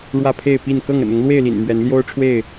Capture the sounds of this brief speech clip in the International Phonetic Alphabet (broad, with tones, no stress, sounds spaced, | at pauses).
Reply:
ɻ w ä˥˨ pʰ e˥˨ ɪ̯ p i˥˨ n k ɤ˥˨ ŋ ə̰˨˩ n ʊ˨˦ ŋ l w e˥˨ ɪ̯ l ḭ˨˩ n m ɥ ɛ˨˦ n l j o˦ ʊ̯ ʈ͡ʂʰ w e˥˨ ɪ̯